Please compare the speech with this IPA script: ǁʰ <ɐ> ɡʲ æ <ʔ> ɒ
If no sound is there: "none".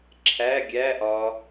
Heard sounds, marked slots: æ, ʔ

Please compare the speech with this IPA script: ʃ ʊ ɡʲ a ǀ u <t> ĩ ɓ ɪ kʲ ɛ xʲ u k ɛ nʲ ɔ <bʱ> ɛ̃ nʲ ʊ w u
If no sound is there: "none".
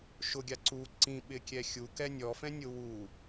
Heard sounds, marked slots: ǀ, f

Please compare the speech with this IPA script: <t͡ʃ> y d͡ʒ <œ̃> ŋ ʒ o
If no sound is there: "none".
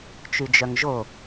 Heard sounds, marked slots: t͡ʃ, œ

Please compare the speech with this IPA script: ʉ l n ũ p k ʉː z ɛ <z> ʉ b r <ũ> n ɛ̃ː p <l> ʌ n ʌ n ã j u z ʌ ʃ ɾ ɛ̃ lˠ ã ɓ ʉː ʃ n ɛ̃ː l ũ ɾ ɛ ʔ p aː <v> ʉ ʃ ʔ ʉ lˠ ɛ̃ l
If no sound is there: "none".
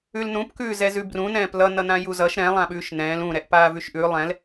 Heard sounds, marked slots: z, ũ, l, v

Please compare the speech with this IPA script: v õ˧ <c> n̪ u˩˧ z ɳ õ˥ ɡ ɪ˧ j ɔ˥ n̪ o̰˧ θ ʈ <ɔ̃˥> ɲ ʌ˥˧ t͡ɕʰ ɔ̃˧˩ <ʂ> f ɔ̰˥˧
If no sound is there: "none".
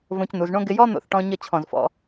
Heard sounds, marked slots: c, ɔ̃˧, z

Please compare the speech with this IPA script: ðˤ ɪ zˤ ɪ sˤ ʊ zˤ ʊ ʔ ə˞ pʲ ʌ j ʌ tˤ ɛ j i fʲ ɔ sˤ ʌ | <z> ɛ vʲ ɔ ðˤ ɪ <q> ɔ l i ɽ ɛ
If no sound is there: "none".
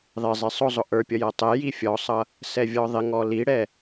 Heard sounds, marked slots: s, ŋ

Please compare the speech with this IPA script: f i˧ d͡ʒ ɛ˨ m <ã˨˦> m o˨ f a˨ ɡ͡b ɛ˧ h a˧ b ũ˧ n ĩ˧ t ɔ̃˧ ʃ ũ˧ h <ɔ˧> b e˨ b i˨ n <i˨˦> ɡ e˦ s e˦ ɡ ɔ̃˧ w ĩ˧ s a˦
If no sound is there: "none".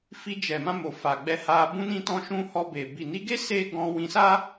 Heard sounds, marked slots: ã˧, ɔ˧, i˨˦

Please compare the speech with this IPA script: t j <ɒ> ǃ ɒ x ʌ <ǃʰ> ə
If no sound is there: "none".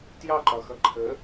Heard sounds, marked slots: ɑ, ǃʰ

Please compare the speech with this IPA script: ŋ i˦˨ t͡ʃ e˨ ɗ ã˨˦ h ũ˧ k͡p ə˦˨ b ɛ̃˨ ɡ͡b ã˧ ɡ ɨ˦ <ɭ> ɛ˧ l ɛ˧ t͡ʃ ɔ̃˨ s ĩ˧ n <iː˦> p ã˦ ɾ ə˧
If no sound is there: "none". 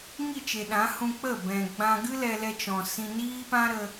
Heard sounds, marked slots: l, iː˦

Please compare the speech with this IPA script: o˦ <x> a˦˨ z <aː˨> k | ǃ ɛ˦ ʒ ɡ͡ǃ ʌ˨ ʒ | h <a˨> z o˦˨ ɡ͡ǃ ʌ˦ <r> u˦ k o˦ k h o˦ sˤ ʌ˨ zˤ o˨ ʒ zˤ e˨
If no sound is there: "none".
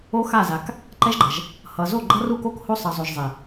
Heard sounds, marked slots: x, a˨, ʌ˨, r

